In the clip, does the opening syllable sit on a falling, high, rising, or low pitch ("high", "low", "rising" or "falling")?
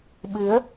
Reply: rising